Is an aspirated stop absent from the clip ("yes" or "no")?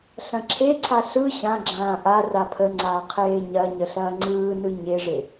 no